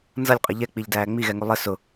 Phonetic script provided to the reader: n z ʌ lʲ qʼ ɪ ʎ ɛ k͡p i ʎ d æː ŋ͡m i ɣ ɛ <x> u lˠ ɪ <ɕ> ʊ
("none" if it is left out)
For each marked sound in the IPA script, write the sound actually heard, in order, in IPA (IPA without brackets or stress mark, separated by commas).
ŋ, s